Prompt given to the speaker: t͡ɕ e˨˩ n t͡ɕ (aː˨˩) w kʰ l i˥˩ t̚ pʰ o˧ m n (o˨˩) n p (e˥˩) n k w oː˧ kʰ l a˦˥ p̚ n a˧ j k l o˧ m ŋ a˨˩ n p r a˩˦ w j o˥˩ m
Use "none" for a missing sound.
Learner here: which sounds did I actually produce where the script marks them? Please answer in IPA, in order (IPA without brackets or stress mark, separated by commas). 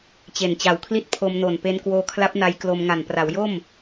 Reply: a˨˩, o˨˩, e˧